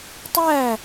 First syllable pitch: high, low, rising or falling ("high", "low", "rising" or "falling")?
falling